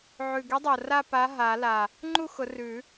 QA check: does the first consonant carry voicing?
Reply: yes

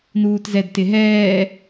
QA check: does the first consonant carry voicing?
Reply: yes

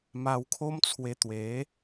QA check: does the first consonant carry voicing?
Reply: yes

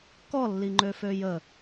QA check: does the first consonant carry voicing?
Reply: no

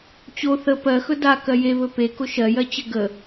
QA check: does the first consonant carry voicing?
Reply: no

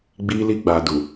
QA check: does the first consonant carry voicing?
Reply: yes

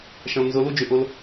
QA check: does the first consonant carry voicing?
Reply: no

